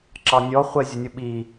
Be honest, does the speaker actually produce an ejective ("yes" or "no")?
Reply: no